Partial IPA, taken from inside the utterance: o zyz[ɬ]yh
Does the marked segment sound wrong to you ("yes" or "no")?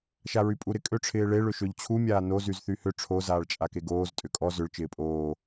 yes